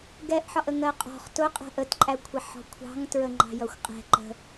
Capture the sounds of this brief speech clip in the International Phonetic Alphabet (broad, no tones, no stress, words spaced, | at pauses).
ɡɛʔħɒʔə ŋɜqʼɔ̤χ tʊqʼæ̤ʔ ətǃʼækʷʰɛ ħɔ̤kʷʰɑ̤ŋtɹə ŋ͡ǃɑ̤jʌxʷqʼɛ̤ ǃə̤